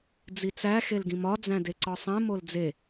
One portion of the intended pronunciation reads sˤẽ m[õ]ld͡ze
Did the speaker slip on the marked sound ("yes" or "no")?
yes